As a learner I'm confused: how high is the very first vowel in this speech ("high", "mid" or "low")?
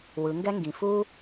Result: high